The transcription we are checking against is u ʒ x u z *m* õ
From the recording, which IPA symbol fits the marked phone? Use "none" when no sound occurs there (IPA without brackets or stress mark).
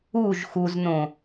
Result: n